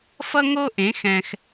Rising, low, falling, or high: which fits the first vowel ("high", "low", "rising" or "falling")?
high